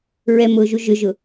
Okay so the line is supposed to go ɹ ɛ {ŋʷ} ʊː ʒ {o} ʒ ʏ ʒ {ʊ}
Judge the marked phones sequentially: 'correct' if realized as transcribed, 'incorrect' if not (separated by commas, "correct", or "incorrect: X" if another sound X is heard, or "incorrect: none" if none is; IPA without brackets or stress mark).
incorrect: m, incorrect: u, correct